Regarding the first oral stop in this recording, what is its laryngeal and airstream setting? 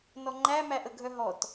click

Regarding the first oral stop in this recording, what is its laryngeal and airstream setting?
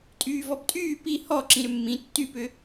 ejective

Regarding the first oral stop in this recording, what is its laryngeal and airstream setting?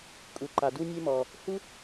ejective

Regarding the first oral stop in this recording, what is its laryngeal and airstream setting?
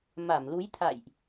aspirated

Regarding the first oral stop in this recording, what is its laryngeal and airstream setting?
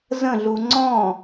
click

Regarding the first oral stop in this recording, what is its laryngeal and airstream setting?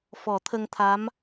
aspirated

